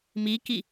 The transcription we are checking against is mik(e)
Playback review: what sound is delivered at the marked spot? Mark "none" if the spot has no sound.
i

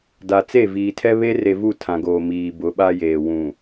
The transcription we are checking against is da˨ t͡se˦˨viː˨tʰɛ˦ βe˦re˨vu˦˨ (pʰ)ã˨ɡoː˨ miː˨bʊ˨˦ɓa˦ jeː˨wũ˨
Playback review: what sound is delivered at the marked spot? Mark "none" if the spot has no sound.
tʰ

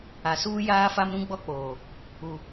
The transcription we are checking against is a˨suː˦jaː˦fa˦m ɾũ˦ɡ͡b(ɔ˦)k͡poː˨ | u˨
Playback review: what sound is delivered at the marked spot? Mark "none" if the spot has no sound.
ɔ˦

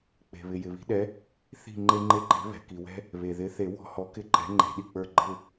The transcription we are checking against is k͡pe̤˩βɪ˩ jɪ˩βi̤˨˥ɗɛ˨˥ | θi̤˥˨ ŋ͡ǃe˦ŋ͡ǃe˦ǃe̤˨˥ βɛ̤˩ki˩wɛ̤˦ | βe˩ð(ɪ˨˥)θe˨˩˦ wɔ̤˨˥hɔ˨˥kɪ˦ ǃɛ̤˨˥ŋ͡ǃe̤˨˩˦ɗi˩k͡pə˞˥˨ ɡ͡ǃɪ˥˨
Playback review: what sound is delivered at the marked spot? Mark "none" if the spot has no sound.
ɪ˨˥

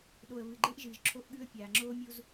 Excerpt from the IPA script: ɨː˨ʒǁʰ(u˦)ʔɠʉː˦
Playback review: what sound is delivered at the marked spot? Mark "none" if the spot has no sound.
o˦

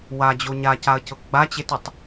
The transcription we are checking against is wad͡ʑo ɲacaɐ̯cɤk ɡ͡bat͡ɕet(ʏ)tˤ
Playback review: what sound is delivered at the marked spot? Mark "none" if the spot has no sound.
ʏ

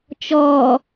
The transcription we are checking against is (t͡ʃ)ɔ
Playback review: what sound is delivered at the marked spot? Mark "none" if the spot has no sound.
t͡ʃ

